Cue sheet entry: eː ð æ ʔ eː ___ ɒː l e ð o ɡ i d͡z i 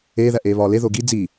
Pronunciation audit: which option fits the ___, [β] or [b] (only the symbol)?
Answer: β